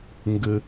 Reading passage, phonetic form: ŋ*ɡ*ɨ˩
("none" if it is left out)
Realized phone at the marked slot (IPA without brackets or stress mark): ɡ